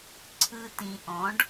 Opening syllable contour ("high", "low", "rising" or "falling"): low